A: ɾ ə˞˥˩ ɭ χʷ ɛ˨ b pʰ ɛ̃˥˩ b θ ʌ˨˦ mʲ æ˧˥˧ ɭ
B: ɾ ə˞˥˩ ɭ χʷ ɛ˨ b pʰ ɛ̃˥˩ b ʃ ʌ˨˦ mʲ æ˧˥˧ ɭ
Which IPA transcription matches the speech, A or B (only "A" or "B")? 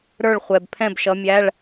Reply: B